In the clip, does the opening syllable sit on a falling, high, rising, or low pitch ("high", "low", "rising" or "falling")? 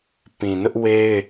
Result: low